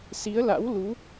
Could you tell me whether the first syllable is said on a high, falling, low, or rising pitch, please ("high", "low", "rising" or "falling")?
rising